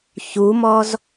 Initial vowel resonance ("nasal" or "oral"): oral